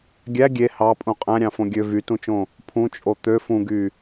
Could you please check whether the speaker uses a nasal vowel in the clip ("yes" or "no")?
yes